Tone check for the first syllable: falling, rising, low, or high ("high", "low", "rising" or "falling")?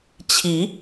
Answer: rising